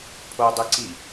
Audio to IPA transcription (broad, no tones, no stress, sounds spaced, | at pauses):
pʰ o dˤ ɯ ǀ i